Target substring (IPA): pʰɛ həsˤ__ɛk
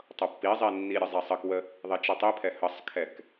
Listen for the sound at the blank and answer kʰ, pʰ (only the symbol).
kʰ